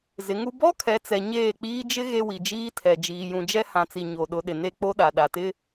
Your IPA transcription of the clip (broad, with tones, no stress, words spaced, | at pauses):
zɪ˨˦ŋu˦ bɔ˦ kʰɛ˨˦t͡sɛ˨ ɲeː˦˨k͡piː˦ d͡ʒɪ˦ ɣe˦wi˨d͡ʒiː˦tʰɛ˨ d͡ʒiː˨jũ˨d͡ʒɛ˦ hã˨t͡si˨ ɲo˨ɗʊ˨˦ɗɪ˨ ne˦˨k͡po˦ ɗa˨ɗa˨tɪ˦